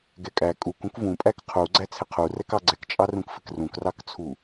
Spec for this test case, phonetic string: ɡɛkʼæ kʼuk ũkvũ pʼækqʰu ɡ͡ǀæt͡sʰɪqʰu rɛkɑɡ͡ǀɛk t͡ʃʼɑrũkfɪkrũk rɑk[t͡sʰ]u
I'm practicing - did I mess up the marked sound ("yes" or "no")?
no